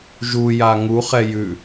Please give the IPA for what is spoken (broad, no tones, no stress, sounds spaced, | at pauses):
ʒ u j a ŋ u χ ɛ j ʉ